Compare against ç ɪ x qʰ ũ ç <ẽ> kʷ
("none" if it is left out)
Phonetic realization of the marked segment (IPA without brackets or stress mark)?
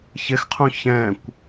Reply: ɛ̃